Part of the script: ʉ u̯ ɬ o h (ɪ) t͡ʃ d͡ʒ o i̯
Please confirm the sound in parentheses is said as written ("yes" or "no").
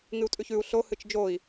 no